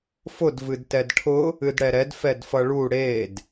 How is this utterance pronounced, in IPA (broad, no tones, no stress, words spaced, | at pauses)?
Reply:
fʊd vɨdtɛdʈʰʊ | ɨdɽɛɾɛd fɛdfʌɭu ɽed